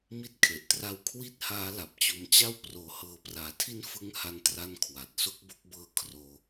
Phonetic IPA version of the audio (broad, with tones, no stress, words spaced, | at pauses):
mi˦˥t̚kʰe˨˩ʔtra˦˥w kʰwi˥˩t̚haː˦˥ la˨˩p̚t͡ɕo˧mt͡ɕa˥˩w proː˨˩hɤː˨˩praː˩˦tʰi˦˥n fɯ˦˥ŋha˧ntra˧n kʰwa˨˩t̚ so˥˩k̚bo˦˥k̚bɤː˦˥ kʰroː˧